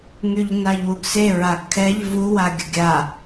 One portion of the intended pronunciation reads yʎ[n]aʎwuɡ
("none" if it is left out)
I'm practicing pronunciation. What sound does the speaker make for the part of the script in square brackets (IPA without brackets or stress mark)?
n